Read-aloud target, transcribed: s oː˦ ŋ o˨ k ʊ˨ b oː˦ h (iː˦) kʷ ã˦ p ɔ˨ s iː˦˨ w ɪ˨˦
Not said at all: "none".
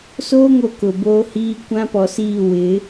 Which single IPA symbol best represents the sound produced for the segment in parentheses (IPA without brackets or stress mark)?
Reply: iː˦